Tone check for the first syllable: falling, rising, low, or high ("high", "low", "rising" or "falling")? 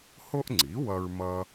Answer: high